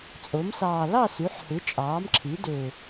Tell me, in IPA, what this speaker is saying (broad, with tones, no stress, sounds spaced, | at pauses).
t͡sʼ o˩˥ m s ɑː˨˩ l ɑ˥˨ s y˩˥ ħ h ɯ˩˥ t͡ʃʼ ɑː˩˥ m ǁʰ i˩˥ d ø˨˩